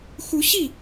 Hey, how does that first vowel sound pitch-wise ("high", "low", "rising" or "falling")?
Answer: rising